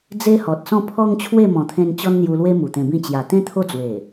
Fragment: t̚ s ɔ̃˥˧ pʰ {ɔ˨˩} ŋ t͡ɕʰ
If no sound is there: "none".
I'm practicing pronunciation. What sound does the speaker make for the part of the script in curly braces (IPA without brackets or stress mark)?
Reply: ɔ˧